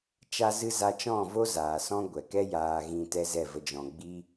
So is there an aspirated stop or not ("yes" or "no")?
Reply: no